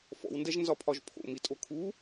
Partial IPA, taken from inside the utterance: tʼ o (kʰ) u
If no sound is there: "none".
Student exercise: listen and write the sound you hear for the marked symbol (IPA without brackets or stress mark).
kʰ